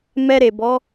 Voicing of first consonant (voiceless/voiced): voiced